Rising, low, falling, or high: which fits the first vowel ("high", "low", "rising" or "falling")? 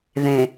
low